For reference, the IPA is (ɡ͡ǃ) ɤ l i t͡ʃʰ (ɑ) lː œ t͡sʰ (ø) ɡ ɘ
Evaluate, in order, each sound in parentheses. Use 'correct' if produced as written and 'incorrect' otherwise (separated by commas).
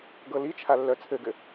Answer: incorrect, incorrect, incorrect